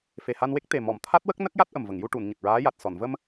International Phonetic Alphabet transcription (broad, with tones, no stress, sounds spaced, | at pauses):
f e˨˩ h a˧ n w e˦˥ k̚ t̪ e˨˩ m ɔ˨˩˨ m t̪ʰ a˦˥ t̚ w ə˦˥ k̚ n ə˦˥ k̚ j a˦˥ t̚ ʔ ə˨˩ m v ə˨˩˨ ŋ j u˧ ʈ u˨˩˨ n ɲ ə˨˩ k̚ ɹ aː˧˥ j a˨˩ t̚ s ɔ˨˩˨ n v ə˧ m